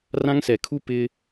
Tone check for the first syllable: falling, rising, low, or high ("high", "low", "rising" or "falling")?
high